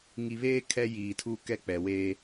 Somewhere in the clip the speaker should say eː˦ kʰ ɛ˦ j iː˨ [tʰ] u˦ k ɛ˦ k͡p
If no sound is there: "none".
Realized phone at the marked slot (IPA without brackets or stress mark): tʰ